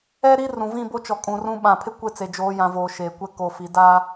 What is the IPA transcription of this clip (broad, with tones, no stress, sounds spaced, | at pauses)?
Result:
ɛ˦ ɾ i˦ r ũ˨ v ĩ˦˨ b o˦ t͡ʃ ɔ˨ kʼ ũ˨ r ũ˦ ɓ ã˨ pʰ ɪ˦ kʷ e˦ t͡s e˨ d͡ʒ oː˨˦ j ã˨ v oː˨ ʃ eː˨ kʷ ɛ˦ k o˨ f i˨ d a˦